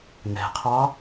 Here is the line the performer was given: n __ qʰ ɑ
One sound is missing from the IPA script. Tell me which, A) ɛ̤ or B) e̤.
A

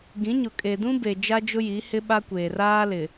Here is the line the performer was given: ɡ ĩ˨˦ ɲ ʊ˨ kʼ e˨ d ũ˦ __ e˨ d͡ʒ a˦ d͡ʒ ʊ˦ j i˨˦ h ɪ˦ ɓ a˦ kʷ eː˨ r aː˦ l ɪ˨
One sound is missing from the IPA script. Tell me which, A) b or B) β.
A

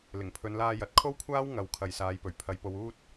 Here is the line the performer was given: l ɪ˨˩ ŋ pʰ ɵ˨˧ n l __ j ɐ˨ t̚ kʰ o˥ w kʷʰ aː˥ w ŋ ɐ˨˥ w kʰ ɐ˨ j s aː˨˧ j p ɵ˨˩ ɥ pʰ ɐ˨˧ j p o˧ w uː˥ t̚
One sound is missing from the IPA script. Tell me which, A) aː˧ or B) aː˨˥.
A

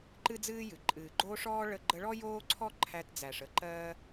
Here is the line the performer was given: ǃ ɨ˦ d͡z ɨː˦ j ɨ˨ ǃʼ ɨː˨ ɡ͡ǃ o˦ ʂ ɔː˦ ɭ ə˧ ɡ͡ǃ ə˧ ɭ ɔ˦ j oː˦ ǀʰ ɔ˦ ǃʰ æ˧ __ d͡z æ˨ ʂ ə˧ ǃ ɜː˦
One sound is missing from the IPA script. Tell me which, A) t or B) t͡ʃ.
A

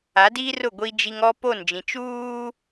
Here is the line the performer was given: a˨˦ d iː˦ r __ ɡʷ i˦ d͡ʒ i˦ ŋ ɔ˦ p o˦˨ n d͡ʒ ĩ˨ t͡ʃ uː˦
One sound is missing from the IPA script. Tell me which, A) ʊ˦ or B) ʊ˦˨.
B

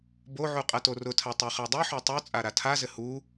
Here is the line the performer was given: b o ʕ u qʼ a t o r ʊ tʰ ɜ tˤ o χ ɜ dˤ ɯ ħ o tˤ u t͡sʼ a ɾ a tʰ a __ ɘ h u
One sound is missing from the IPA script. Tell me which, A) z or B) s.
A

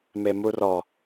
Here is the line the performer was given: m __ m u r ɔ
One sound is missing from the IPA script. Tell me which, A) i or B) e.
B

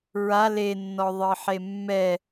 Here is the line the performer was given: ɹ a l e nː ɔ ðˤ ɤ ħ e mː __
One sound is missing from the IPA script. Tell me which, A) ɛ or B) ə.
A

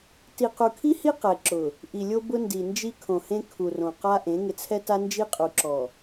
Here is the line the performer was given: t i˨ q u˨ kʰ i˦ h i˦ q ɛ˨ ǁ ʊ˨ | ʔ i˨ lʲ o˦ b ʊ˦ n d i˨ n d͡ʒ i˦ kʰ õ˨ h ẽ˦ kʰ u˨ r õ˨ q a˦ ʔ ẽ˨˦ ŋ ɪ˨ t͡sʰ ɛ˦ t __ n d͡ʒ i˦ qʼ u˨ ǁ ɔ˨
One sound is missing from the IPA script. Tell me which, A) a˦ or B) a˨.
A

